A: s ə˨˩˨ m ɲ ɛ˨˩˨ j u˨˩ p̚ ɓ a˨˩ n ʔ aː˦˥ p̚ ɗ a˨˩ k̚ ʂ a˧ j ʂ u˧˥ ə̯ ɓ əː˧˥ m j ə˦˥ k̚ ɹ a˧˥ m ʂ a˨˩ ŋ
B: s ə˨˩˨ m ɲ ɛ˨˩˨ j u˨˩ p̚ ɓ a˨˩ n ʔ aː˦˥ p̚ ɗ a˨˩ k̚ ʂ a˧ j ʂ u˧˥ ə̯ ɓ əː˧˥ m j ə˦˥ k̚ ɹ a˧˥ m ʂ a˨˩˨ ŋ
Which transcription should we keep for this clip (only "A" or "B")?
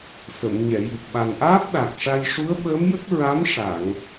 B